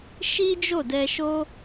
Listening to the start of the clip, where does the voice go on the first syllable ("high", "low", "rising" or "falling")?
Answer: high